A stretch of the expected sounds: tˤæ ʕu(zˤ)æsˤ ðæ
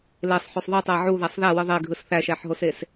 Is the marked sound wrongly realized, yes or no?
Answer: yes